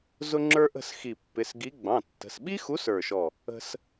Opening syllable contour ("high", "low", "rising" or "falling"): high